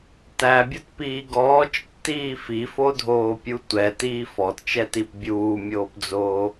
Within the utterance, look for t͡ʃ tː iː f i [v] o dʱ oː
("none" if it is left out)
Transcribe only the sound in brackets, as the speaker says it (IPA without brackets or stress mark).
f